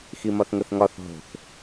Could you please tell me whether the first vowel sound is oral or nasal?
oral